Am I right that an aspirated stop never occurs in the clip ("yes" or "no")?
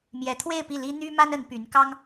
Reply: no